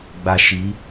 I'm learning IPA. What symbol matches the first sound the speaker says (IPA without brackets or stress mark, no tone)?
ɡ͡b